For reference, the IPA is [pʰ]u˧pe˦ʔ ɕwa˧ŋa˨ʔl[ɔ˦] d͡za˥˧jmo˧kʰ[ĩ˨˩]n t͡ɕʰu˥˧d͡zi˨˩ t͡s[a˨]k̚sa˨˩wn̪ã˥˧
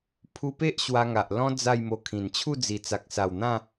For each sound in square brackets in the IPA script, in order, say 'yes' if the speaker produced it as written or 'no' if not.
yes, no, yes, yes

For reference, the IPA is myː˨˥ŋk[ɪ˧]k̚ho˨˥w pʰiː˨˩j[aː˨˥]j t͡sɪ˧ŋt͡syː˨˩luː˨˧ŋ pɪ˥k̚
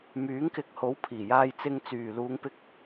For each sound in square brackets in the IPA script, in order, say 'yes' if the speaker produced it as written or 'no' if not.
yes, no

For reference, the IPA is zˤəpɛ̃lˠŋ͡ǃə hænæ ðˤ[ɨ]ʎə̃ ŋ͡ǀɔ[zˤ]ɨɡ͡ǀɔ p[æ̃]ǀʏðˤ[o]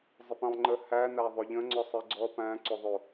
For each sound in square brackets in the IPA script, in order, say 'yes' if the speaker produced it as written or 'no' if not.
no, no, yes, yes

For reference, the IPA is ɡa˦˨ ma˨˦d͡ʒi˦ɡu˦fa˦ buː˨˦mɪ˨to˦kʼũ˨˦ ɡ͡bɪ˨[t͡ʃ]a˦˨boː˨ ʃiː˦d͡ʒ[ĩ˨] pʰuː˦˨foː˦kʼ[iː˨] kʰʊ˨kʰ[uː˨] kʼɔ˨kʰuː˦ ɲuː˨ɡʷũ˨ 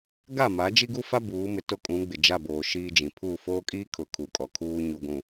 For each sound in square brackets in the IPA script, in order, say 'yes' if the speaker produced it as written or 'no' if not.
no, yes, no, no

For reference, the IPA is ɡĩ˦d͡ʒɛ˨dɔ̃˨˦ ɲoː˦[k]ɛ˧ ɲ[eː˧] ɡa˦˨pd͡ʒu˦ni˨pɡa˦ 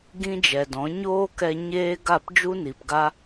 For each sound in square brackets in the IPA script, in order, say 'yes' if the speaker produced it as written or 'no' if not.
yes, no

